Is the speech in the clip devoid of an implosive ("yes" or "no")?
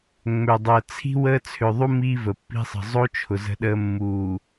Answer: no